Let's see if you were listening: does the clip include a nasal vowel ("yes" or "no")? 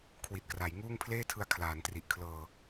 no